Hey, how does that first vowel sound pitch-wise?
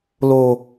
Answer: low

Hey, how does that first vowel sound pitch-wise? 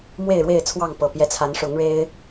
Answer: falling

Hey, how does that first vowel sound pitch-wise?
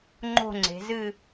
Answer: falling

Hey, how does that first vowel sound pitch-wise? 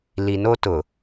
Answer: low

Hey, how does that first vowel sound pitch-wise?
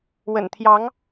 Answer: low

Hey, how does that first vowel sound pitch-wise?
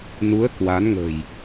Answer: rising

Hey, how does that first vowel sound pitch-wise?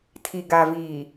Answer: low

